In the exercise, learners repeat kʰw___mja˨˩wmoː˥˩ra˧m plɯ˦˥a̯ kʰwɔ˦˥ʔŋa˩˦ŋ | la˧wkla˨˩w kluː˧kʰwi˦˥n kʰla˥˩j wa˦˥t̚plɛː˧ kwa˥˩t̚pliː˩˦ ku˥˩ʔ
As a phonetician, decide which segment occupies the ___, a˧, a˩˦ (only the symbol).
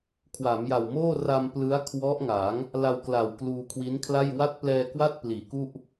a˩˦